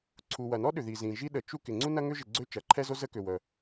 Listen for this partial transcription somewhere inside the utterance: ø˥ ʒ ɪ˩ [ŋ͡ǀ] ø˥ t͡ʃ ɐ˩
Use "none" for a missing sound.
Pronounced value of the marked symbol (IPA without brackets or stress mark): ɡ͡ǀ